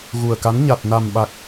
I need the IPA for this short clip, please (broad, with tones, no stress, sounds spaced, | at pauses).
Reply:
ɣ u˨˩ ə̯ k a˨˦ n ɲ a˨˩ t̚ n a˨˩ m ɓ a˨˩ k̚